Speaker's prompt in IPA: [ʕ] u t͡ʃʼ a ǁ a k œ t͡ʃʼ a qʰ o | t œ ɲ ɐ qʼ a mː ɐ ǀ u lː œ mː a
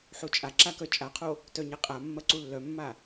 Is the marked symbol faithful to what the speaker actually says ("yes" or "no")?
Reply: no